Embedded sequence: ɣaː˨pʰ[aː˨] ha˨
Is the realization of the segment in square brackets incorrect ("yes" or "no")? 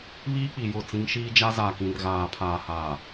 no